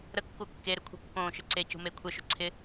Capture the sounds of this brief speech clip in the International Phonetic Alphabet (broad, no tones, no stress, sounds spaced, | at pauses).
ɾ ə kː u kː e ɾ ʏ kʷʰ ə̤ kː õː ʃ ɪ ǀ e c ṳ m e kʷʰ ɪ ʃ ʏ ǀʰ ɪ